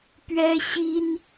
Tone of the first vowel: high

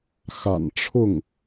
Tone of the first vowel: low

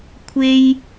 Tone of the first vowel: high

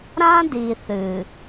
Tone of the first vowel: high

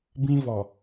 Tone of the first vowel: high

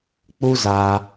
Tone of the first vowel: high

